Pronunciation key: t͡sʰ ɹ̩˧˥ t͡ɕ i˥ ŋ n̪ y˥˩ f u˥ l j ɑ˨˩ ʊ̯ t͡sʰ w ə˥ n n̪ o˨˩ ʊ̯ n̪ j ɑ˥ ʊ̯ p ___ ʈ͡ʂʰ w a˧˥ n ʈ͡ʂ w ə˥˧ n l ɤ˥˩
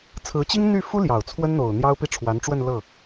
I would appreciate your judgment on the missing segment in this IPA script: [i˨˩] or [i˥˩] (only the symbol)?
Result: i˥˩